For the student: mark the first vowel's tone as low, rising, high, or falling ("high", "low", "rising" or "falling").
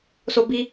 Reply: high